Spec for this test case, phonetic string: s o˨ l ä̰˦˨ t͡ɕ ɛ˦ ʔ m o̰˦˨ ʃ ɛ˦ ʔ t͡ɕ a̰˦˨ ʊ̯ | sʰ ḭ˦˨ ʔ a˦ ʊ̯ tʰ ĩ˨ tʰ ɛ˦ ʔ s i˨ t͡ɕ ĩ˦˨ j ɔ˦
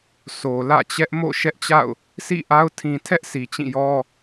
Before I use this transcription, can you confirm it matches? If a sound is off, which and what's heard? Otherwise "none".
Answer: none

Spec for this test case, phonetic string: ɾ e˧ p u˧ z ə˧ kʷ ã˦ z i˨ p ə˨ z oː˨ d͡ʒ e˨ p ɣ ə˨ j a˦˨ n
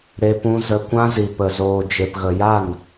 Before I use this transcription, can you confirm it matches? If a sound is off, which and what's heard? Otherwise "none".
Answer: u˧ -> ũ˧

